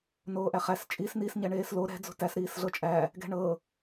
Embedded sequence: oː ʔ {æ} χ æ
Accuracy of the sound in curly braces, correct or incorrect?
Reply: correct